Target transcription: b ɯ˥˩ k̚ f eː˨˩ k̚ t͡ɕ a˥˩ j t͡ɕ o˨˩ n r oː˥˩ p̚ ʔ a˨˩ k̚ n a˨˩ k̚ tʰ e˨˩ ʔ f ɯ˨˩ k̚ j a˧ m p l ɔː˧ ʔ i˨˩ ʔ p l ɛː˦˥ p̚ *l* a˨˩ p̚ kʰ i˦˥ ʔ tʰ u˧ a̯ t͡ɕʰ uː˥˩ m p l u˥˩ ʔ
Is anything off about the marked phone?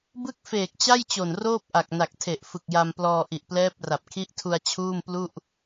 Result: yes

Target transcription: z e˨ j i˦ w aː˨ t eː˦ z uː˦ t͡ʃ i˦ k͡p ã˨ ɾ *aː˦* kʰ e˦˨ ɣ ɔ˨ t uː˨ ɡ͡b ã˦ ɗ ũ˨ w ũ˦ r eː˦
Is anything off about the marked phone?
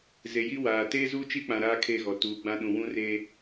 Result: no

